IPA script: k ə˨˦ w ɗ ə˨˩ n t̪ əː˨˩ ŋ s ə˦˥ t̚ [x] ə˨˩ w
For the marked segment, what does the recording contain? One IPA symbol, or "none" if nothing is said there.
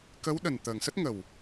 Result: ŋ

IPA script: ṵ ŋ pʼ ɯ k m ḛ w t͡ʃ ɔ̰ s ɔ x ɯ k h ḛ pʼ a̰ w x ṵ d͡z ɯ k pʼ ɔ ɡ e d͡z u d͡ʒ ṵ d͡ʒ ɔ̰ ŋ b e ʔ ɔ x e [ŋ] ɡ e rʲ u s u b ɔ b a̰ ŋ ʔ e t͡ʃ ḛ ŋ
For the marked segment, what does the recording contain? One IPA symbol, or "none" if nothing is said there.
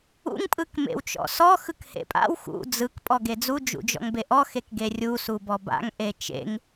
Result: k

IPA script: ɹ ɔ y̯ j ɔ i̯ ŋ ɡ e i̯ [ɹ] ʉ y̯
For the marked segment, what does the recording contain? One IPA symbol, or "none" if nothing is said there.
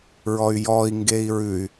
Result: ɹ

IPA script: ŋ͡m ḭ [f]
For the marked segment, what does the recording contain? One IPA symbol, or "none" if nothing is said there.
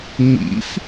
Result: f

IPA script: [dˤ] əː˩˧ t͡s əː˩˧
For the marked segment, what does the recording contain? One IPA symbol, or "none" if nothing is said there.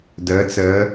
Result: d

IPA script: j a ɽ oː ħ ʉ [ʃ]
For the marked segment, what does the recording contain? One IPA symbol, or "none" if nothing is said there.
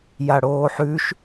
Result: ʃ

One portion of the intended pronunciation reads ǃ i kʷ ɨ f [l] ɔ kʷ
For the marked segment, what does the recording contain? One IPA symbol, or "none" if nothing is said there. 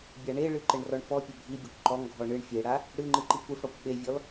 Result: ɽ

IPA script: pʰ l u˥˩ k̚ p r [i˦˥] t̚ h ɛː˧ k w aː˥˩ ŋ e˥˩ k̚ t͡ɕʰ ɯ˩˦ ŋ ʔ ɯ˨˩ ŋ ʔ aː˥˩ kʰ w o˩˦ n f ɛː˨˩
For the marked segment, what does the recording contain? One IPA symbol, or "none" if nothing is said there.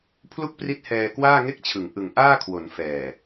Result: i˦˥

